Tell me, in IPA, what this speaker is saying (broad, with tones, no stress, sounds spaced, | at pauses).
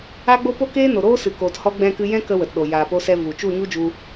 a˦ ɡ͡b o˦ p o˦ k eː˦ n o˨ ɾ oː˦ s ɨ˨ k oː˨ t h ɔ˧ ɡ͡b ɛ̃˧ k ɨ˧ j ɛ̃˦ k ə˧ w ə˨ t ɗ o˨ j aː˨ p o˧ s ɛ˧ v u˨ t͡ʃ u˦˨ ɲ u˦ d͡ʒ u˧